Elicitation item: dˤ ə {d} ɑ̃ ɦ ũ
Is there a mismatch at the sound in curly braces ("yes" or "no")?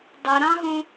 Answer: yes